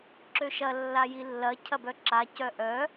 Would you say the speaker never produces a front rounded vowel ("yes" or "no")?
no